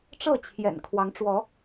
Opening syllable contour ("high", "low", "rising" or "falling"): falling